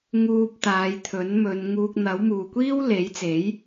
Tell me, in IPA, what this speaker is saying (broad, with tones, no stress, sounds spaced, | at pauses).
ŋ uː˧ p̚ t̪ aː˨˧ j t̪ʰ ɵ˨˥ n m ɵ˨˧ n ŋ uː˧ k̚ n̪ ɐ˨˥ w m uː˨ kʷ iː˥ w l e˨˥ j t͡s e˨˥ j